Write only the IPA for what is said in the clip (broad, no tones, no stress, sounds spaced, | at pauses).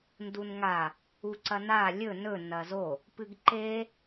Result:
n d u n ŋ a | u ǀ ɐ n a lʲ ɵ n ɵ n ɐ z o | p ɨ ɡ ǃ e